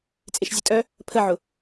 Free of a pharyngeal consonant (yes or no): no